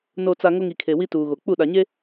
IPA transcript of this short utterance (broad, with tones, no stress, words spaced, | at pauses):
no˨t͡sa˨ ŋo˦ŋi˨kʰe˨ wi˦tuː˨ɣo˨ k͡pu˦˨ɗa˨ɲe˦